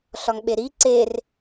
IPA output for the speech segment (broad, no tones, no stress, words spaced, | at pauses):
ɬɒŋɓeɾi ǀer